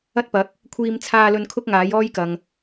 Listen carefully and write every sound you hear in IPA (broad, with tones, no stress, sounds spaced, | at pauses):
ɐ˥ t̚ p ɐ˨˥ k̚ | kʷʰ iː˧ m t͡sʰ aː˧ l ɵ˧ n kʰ ʊ˥ k̚ ŋ aː˨˥ j ɔː˥ j k ɐ˨ ŋ